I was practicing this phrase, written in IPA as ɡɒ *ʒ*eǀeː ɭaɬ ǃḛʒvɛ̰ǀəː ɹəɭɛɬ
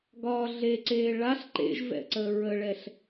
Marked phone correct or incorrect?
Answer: incorrect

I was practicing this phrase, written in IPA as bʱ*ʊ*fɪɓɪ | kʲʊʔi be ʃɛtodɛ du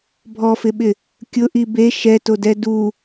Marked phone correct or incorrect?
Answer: incorrect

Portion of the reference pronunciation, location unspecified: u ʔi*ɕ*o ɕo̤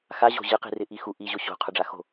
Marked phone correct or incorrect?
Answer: incorrect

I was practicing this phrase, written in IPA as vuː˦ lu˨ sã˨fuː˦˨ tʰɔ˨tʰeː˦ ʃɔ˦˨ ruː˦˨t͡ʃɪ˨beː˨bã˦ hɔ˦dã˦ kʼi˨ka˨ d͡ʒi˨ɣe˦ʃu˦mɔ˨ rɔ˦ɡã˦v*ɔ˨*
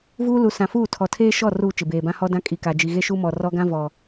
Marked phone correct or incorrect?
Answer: correct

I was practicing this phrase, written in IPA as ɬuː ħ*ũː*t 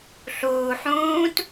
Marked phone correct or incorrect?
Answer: correct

